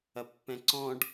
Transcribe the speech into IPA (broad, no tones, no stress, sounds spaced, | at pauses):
ɐ pː ɛ̃ ǀ ɔ̃ ɖ